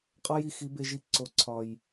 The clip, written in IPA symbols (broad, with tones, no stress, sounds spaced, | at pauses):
qʼ ɒ˧ j i˨ x i˨˦ b e˧ ʒ i˧ ǀ o˨ ǀʰ ɒ˨ j